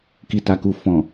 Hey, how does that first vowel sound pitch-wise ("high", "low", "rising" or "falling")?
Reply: low